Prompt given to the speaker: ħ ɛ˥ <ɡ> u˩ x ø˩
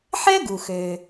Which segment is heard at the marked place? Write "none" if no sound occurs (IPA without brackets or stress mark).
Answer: ɡ